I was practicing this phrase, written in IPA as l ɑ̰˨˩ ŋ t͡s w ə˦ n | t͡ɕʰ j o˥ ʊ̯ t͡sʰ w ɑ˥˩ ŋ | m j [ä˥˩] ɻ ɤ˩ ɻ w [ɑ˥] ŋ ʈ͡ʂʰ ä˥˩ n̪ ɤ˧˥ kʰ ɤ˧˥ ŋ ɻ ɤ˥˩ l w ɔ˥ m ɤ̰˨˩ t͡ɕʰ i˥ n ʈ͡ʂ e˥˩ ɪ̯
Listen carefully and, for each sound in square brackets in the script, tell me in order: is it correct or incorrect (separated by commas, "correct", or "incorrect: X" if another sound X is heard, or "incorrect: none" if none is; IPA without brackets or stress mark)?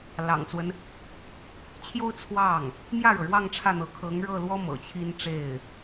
correct, incorrect: ɑ˥˧